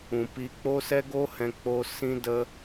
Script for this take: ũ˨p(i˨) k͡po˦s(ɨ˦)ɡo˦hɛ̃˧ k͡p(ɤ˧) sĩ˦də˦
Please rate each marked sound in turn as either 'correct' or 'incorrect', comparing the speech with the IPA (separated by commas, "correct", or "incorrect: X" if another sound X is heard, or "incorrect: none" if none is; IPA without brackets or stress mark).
incorrect: i˧, incorrect: ɛ˦, incorrect: o˧